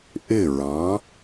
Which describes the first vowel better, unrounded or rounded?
unrounded